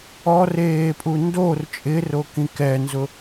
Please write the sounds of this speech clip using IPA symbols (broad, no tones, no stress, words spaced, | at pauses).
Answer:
ɔreːpʼu ndor t͡ʃʼɪrokĩ kɛnzʊ